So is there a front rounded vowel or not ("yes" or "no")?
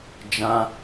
no